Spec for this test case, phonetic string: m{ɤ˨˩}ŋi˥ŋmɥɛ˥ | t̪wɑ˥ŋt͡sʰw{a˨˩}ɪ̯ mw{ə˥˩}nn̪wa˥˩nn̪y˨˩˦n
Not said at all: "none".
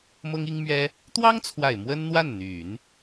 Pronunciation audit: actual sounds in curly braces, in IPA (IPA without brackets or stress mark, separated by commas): ɤ˥, a˨˩, ə˥